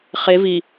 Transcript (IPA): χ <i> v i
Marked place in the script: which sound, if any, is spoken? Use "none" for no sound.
e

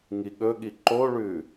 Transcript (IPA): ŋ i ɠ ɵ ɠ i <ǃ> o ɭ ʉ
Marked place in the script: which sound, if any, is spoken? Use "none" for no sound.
ǃ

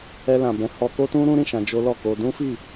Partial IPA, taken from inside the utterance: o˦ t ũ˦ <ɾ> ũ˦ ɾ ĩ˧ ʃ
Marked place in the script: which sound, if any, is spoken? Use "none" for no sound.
ɾ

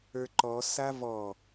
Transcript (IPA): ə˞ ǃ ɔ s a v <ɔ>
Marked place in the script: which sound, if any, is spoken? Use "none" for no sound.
ɔ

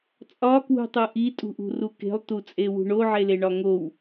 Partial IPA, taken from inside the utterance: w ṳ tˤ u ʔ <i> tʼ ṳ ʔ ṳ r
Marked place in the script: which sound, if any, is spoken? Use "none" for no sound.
i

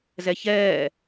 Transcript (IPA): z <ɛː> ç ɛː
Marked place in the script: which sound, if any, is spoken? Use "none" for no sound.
ɛ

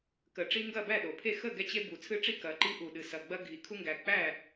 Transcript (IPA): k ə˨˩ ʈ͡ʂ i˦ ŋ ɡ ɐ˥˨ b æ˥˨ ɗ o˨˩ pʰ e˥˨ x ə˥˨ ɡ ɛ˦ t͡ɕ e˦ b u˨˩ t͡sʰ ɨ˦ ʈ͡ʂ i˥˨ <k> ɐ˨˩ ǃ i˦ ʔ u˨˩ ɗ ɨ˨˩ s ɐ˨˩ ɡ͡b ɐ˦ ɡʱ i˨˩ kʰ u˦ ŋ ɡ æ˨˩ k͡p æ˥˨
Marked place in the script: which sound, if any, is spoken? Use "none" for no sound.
k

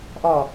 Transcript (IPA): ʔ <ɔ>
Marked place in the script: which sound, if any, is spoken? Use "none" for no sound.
ɔ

